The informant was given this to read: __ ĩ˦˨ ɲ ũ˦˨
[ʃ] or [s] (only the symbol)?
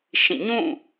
ʃ